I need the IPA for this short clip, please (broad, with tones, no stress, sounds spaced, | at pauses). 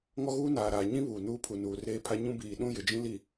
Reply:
ŋ ɔ˦ ɣ uː˦ n aː˨ ɾ aː˨ ɲ ĩ˦ β uː˨ n uː˦ pʰ u˨ n uː˨ r eː˦ pʰ a˦ ɲ ũ˦ b iː˨ ɗ ũ˦ j ɪ˨ d͡ʒ ĩ˦ l i˨